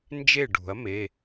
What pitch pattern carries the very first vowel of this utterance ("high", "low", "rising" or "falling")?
falling